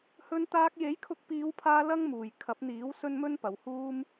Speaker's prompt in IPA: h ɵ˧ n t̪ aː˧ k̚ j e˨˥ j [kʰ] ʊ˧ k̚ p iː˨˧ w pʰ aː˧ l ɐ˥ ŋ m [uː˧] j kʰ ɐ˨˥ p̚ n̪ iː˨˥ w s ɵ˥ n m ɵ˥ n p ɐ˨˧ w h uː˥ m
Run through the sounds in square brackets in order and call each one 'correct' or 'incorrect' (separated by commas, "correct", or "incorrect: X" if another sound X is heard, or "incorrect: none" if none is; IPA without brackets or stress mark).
correct, incorrect: uː˨